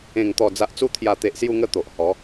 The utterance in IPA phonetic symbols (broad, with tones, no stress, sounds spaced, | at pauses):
ẽ˨˩ ŋ t̪ ɔ˨˩ d͡z a˨ ʔ t͡s u˧ t̪ʰ j a˨˩ t̪ e˨ ʔ s j u˧ ŋ ə˧ t̪ o˨ ʔ h ɔ˨˦